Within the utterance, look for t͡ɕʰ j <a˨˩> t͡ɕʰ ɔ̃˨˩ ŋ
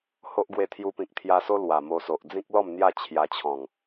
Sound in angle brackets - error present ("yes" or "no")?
yes